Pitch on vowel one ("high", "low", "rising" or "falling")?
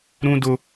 high